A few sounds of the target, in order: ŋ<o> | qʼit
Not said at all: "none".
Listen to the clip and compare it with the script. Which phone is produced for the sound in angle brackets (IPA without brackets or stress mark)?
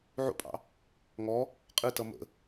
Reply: ɔ